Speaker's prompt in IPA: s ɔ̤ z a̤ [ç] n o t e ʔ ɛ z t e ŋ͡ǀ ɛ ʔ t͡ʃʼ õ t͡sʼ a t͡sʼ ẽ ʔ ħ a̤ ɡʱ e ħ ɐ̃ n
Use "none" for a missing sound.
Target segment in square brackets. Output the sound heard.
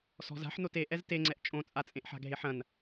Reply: ħ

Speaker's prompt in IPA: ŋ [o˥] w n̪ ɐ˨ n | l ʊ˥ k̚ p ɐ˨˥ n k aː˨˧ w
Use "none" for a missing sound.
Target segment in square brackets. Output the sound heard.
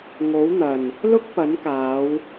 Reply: o˨˥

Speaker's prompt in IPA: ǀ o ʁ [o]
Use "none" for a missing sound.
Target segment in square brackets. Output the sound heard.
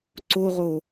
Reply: o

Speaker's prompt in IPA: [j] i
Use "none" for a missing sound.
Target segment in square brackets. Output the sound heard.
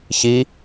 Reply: ç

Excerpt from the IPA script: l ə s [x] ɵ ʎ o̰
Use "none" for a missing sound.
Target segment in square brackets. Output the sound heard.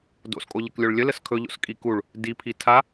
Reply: kʰ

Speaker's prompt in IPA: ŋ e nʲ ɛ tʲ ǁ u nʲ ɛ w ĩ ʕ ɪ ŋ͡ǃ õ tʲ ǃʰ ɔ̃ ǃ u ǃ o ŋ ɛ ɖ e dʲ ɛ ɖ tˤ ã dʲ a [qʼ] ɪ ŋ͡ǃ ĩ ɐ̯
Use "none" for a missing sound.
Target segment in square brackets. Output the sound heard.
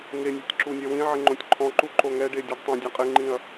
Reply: qʼ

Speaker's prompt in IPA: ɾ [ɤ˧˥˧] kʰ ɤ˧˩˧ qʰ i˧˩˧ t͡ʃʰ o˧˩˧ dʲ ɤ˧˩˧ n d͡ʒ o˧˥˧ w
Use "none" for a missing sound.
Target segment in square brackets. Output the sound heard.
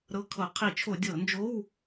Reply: ɤ˧˥˧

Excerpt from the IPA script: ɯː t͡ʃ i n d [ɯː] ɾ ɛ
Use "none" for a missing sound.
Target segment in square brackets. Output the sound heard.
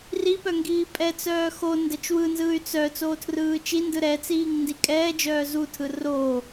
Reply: ɯ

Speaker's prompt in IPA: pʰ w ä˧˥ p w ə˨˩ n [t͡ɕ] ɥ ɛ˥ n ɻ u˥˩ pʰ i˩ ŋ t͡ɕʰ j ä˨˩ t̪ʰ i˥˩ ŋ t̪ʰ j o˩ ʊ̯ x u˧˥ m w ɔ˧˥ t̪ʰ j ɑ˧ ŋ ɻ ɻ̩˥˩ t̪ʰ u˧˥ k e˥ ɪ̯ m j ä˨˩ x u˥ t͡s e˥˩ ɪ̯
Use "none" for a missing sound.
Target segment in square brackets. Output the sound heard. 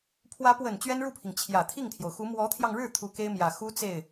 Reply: t͡ɕ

